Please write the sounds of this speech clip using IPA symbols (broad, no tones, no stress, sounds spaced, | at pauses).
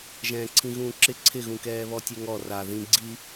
ʒ ɛ̃ː ǀʰ ĩ ɣ ũː ǁ ɪ ǀʰ ɪ ɣ ũ k ɛː β ɔ tʲ ɛ ŋ ɔ r a ð ĩ ɡ͡ǀ i